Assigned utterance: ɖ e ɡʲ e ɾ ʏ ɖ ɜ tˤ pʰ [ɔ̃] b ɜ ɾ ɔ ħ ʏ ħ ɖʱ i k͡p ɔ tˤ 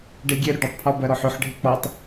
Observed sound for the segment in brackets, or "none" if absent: ɔ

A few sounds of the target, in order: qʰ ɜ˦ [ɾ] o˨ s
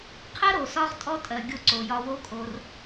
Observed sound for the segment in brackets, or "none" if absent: ɾ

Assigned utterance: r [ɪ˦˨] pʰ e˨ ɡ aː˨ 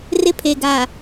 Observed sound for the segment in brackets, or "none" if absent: ɪ˦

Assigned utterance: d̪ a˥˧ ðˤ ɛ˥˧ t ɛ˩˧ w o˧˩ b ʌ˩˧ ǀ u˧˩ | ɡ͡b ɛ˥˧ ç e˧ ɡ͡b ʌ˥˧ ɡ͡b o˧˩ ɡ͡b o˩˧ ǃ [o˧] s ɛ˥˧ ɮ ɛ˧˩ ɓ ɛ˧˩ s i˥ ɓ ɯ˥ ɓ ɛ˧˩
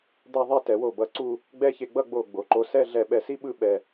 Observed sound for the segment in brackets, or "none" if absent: o˧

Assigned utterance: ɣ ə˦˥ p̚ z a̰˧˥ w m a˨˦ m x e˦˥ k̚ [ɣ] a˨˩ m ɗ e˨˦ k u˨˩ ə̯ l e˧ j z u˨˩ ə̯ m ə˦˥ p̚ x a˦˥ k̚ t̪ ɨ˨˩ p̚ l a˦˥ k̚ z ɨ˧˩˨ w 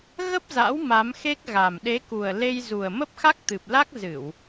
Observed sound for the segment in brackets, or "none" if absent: ɣ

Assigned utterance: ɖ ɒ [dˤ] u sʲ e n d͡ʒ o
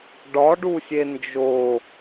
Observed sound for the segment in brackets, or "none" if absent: ɖ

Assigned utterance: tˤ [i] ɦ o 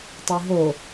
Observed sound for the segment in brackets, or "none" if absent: i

